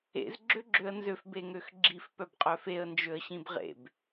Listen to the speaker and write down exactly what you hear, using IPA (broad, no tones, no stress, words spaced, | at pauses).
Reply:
ḛz ɡ͡ǁøɡ͡ǁøə̯nzøf beŋøxɡ͡ǁif pœbqʼœfeə̯ nd͡ʒøə̯ɕĩbʁḛb